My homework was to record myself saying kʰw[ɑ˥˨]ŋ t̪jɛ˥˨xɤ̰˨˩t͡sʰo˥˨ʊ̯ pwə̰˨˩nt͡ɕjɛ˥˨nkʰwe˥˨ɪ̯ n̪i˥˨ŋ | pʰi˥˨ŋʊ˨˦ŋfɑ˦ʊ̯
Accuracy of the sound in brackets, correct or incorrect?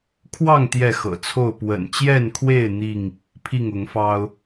correct